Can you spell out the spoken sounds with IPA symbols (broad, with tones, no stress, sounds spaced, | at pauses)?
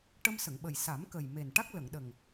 ʈ ə˧ m s ə˨˩˨ ŋ ɓ ə˨˩ j s a˨˩˦ m k ə˨˩ j m e˨˩ n ʈ a˦˥ k̚ l ə˨˩˨ ŋ ɗ ə˨˩ ŋ